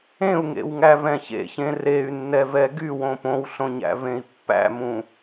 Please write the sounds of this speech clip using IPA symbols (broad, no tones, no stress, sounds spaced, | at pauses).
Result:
ẽ u̯ ŋ ḛ w ŋ æ v ɛ̃ ç ḛ ç ẽ r e y̯ nː ɛ v ɛ ɡ y w õ p õ w ɬ õ ɲ æ̰ v ẽ i̯ pː æ̰ m ũ